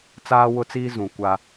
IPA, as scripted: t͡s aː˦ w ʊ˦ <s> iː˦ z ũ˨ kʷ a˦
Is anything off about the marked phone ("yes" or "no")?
yes